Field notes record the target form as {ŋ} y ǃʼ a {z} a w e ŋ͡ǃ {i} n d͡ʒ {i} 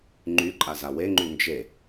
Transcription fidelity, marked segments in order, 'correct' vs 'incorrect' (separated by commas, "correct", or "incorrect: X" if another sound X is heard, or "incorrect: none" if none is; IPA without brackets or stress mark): incorrect: ŋ͡ǃ, correct, incorrect: y, incorrect: e